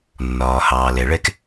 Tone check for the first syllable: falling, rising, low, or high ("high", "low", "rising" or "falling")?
low